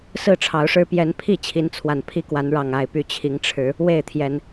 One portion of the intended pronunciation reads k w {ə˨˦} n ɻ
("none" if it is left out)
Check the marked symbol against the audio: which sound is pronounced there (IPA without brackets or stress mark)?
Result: a˨˦